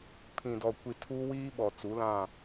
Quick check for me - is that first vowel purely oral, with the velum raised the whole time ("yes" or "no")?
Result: no